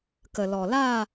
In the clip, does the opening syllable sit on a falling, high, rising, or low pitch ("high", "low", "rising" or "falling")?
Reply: low